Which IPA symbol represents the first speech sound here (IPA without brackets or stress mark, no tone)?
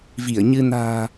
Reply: v